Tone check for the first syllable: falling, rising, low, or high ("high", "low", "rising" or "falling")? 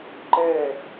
falling